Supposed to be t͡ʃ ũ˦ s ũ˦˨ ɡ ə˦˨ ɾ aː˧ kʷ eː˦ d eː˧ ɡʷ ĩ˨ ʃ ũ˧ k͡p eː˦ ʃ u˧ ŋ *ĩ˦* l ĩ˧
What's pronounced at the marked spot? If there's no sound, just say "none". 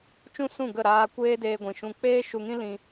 ĩ˦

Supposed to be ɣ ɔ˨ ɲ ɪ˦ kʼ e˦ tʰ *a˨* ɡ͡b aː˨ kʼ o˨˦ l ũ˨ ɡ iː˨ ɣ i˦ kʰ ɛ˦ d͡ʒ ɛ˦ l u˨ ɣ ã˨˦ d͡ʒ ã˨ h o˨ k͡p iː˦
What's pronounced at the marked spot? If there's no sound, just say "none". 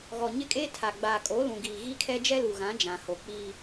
a˨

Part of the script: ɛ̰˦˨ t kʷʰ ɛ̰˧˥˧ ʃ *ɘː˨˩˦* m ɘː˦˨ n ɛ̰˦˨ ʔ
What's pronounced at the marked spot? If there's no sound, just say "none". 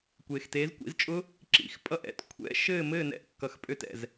ɘː˦˨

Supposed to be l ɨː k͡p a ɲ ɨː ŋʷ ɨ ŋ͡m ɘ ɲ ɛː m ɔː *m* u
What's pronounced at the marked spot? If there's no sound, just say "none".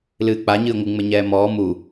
m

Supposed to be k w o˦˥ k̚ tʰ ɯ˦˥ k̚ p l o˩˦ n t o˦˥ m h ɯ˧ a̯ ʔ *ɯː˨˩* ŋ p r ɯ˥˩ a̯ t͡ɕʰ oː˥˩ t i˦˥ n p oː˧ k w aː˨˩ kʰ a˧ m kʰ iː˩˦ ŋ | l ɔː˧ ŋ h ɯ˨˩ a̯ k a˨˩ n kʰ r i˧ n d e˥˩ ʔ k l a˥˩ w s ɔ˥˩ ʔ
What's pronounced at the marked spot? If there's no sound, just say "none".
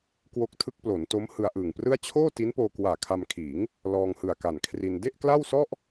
ɯː˨˩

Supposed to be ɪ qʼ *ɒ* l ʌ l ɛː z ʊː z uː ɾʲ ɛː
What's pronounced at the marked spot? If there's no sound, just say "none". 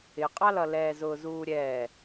ɑ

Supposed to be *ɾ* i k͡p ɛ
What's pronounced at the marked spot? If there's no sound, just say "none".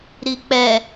ɾ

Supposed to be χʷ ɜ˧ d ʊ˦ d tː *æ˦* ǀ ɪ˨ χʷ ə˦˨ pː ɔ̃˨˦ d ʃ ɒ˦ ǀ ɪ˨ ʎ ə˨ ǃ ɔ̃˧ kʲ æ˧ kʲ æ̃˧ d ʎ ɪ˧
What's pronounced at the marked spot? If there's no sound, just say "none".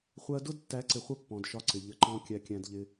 æ˨˦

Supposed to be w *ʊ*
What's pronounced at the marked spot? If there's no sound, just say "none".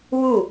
u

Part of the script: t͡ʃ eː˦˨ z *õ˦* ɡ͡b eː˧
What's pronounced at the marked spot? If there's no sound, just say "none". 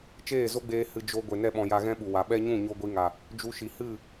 o˦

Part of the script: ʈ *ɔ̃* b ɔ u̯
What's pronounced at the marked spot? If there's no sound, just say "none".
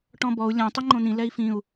ɔ̃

